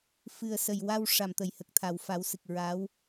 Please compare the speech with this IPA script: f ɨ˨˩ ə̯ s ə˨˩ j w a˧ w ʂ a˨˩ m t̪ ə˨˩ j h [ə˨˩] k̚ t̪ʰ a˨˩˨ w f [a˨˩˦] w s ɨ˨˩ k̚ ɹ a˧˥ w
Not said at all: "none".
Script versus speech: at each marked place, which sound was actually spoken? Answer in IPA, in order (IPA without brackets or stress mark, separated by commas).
ə˨˩, a˨˩˦